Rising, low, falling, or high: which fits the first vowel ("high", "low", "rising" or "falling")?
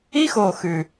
high